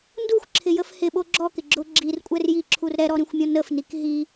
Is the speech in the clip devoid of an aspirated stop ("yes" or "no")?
no